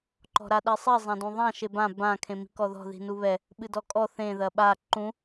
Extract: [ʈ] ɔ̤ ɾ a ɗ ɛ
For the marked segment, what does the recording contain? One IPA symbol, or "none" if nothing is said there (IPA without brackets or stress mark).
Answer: ǃ